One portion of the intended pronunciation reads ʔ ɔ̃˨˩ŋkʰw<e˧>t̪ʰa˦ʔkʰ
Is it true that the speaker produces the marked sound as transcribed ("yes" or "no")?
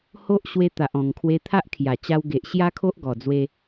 yes